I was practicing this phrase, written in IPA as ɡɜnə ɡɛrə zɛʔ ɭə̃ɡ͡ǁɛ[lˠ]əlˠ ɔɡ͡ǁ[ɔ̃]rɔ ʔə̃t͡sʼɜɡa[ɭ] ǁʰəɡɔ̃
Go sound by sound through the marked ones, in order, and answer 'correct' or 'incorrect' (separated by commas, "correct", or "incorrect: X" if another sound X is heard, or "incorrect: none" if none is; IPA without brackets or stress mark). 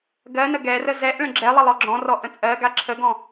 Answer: correct, correct, incorrect: none